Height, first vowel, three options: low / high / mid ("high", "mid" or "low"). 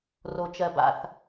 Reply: mid